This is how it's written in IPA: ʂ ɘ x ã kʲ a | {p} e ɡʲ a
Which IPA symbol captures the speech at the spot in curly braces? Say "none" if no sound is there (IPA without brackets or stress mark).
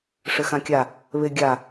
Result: β